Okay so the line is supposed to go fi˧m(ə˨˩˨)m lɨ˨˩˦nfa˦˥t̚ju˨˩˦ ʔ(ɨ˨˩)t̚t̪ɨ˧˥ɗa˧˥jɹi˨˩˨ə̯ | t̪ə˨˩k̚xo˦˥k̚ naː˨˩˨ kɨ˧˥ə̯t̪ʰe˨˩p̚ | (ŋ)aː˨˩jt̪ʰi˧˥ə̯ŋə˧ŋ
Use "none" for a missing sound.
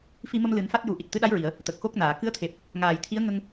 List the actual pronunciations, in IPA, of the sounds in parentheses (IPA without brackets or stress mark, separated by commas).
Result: ə˧, i˨˩, ŋ